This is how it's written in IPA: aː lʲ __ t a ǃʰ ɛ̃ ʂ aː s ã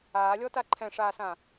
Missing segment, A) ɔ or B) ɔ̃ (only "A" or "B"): A